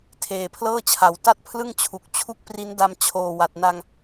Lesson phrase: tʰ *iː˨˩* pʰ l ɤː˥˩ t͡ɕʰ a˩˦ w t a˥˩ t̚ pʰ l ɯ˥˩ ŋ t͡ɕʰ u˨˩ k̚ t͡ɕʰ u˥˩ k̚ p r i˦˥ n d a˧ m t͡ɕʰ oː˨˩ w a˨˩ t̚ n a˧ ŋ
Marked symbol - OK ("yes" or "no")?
no